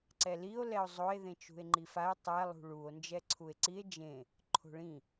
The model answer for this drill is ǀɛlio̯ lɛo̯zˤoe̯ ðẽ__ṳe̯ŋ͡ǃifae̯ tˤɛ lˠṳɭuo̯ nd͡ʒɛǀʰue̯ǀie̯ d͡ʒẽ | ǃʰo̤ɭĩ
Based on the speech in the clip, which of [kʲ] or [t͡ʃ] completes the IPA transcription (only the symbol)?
t͡ʃ